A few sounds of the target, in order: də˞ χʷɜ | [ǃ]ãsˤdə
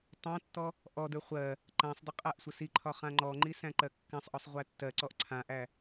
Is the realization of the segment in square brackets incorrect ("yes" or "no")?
no